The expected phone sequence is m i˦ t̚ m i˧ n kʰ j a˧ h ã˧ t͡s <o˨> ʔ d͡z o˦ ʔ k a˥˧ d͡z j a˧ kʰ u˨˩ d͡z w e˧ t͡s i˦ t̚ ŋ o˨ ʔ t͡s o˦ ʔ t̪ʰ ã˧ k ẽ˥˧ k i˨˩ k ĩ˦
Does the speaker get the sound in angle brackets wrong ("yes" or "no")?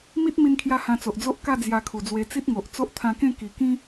no